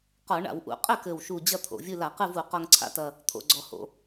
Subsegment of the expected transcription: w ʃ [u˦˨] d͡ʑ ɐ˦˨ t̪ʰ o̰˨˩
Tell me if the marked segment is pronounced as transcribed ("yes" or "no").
no